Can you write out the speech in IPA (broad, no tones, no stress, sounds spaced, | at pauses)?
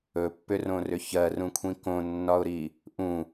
ɵ pː ʏ r õ r ʏ ç ɜ r ũ kʷʰ ĩ k õ nː ɒ ʊ̯ ɾ i | ʔ ũ